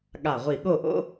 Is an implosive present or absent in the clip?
present